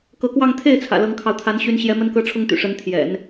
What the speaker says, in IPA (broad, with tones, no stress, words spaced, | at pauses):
kɤ˧˥kwɑ˥˧ŋ t̪ʰe˥˩ɪ̯t͡sʰä̰˨˩ lɤ˧˥ŋkʰɑ˧ʊ̯ t̪ʰa˧˥nɕy˧˥nɕjɛ˧˥ mə˥nkɤ˥ʈ͡ʂʰʊ˥ŋt̪y̰˨˩ ʂə˧˥nt̪ʰjɛ̰˨˩˦n